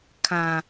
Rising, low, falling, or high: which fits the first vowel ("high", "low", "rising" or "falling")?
low